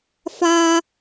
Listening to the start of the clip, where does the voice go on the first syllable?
high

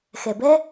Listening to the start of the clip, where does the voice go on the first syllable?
low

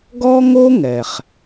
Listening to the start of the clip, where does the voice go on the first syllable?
high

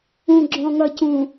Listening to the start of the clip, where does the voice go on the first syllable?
low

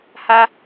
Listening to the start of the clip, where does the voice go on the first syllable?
high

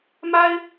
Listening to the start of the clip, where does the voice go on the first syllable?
high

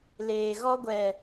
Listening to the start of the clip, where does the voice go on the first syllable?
low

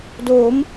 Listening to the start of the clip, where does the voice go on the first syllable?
rising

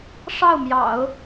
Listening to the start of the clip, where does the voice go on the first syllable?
falling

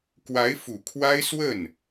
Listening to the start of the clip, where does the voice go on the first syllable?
rising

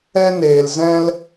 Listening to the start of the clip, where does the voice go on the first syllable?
high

